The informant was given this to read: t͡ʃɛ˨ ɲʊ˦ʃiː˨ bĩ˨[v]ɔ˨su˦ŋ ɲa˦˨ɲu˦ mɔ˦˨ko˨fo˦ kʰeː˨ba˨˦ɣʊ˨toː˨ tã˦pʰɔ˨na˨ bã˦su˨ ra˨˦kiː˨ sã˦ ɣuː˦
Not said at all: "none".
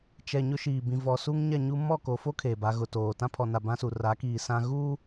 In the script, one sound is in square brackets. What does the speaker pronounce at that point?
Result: v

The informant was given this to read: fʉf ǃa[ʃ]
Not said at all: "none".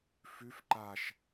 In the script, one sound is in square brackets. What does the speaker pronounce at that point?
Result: ʃ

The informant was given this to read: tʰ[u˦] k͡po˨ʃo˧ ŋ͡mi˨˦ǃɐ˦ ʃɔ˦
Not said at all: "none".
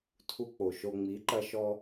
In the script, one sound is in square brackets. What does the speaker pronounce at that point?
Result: u˧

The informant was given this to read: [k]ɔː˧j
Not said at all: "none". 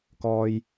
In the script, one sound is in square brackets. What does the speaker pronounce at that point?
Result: k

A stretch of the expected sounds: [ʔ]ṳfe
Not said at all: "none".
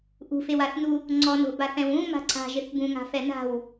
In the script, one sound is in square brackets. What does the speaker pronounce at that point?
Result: ʔ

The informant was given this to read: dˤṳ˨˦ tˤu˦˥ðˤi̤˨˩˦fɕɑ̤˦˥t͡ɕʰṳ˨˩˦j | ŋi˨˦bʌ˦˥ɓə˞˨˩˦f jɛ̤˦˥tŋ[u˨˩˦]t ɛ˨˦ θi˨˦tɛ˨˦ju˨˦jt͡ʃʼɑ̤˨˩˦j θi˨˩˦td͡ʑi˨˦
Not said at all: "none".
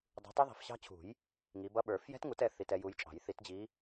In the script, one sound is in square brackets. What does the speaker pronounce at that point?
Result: u˨˩˦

